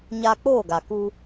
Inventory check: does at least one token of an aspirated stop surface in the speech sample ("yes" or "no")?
no